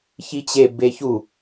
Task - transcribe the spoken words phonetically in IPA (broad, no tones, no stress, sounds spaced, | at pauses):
ç i t͡ɕ e b e ç u